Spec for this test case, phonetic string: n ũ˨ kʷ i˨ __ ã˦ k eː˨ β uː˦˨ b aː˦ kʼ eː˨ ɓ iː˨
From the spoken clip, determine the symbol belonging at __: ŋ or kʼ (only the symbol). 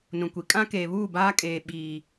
kʼ